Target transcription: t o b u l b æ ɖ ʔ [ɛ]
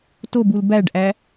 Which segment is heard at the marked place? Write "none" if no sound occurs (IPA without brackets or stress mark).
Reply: æ